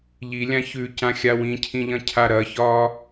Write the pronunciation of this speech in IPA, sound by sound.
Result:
ʎilʲã çʉcãxʲa wĩcʰĩʎɐ̃cʰa ɾɐçɒː

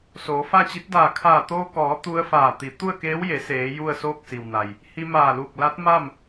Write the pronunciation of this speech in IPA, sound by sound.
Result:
soː˩˧fa˥˨t͡ɕi˧˥t̚ daː˧˩kʰaː˧˩t̪oː˧kɔː˩˧ t̪u˧ə̯faː˧˩ t̪i˩˧ t̪u˥˨ə̯keː˧˥wje˩˧seː˩˧ ju˥˨ə̯soː˥˨k̚si˩wna˩j | hi˧maː˧˩luː˧˩k̚ la˧˥t̚ma˥˨m

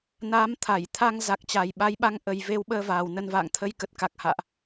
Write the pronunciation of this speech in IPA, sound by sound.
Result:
naː˨˦m t̪ʰa˧˩j t̪ʰa˧ŋ za˨˩k̚t͡ɕa˨˩jɓa˨˦jɓa˨˦ŋ ʔə˨˩jve˧wɓəː˧ vaː˨˩wnə˧nva̰ː˧˨ŋ t̪ʰə˧jkə˨˩t̚ka˨˩k̚ ha̰ː˧˨ʔ

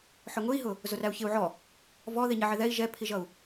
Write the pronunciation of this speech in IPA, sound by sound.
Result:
ħʊŋʊi̯ɦʊ | zʊræu̯çɪu̯ʕɔ | vɔði ɲɪʕɪðɛi̯ ʒɛpʰiʒʌu̯

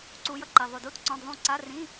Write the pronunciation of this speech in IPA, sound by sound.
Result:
ǀu˨˦jʌ˥˩ǃi˨ ðˤu˨du˧˥˧t ǀɔ̃˧˥˧dðˤũ˥˩ ǀa˧˥˧rĩ˧˥˧

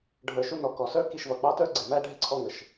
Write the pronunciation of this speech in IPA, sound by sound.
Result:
ɖʱə˞˨ʃu˧nɔ˨ kɔ˨sə˞˦ ki˧ʃvʌ˨k͡pɑ˦tə˞˦ ɡ͡ǀɪ˨mæ˦ ɖʱɪ˦ǀʰɔ˦ŋə˨ʃ

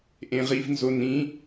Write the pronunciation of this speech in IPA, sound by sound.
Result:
ʔẽʁivnzonĩ

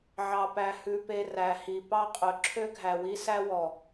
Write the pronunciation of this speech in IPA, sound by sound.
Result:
ʕɑ˨pæ˨hʉ˨pe˨ ræ˨hi˨ pɑ˦qʼɵ˨ ǁʰø˦ɡʱæ˨wi˦sæ˦ wɔ˨

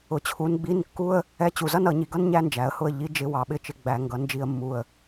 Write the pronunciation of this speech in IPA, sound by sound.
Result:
ʊ˩˧t͡ɕʰu˩˧n ɡ͡bi˧˥˧nkːu˥ə̯ | ɛ˧˥˧t͡ɕu˨˩zʌ˥n ʌ˧˩˧ɲi˨˩ɡʌ˥n ɲæ˥nd͡ʒæ˩˧ə̯hʊ˥˩ə̯ ʎi˧˥˧d͡ʒɪ˧˥˧ wɑ˩˧ɓɪ˥˩t͡ʃɪ˥˩ ɡ͡bæ˧˩˧ ŋɡʌ˩˧nd͡ʒi˧˩˧ə̯mːu˨˩ə̯

